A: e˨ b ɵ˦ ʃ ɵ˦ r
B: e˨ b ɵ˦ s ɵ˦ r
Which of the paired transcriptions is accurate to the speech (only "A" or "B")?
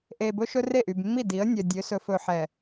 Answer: A